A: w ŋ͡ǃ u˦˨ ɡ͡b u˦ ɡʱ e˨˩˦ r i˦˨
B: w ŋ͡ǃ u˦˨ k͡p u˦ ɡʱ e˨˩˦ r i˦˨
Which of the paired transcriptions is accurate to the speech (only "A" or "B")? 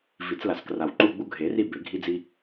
A